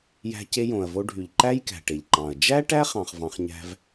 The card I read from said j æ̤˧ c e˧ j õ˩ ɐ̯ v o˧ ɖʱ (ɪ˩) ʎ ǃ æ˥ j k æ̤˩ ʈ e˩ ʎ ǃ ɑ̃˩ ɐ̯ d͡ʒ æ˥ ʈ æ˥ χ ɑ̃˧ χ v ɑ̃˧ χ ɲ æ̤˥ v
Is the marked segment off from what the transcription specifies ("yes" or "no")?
yes